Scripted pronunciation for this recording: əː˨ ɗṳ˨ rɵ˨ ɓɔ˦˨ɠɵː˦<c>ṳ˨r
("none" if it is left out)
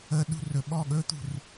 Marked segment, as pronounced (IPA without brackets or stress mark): t̪